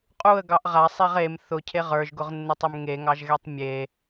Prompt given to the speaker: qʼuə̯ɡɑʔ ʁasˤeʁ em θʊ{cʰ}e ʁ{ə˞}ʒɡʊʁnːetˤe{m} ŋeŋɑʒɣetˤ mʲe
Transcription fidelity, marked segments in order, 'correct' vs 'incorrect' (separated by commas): correct, correct, correct